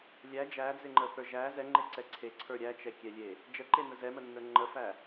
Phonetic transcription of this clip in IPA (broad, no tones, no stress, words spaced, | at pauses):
lʲæ d͡ʒæd͡zeŋ͡ǃəθə˞ ʒæ zɛŋ͡ǃeǀɛ ǀʰeǀʰə˞ ɾʲæt͡ʃɛkʲɛlʲe | d͡ʒəǃenə zɛmənːə˞ ŋ͡ǃəfæ